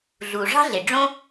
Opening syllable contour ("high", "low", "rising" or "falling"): low